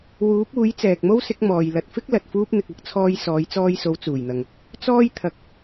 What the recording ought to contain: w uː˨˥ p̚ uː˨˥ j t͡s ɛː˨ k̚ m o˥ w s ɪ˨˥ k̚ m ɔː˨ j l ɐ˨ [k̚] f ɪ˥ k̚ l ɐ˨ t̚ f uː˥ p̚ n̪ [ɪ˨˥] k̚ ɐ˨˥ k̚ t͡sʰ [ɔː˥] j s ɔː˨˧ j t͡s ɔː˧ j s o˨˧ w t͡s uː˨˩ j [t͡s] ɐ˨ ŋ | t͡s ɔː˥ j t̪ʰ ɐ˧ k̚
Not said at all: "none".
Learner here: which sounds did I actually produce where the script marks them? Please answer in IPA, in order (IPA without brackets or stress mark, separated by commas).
t̚, ɪ˨, ɔː˧, n̪